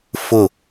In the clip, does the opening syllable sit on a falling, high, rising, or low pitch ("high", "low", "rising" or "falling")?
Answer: falling